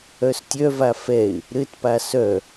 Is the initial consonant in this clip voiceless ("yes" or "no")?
yes